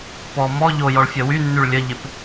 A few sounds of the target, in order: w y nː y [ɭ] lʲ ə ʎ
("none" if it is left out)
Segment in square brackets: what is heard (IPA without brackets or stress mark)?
ɭ